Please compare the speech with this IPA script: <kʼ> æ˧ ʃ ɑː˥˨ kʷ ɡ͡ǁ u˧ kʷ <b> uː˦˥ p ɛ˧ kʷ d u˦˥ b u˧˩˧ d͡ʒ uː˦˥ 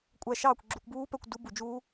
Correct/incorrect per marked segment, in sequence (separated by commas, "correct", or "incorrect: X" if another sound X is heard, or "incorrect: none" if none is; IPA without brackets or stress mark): incorrect: kʷʼ, correct